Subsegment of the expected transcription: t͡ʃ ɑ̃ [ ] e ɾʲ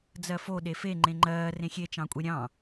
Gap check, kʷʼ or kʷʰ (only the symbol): kʷʼ